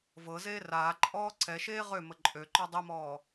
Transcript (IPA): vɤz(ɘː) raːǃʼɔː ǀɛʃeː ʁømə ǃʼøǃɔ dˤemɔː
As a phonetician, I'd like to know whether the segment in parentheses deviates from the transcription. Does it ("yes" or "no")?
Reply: yes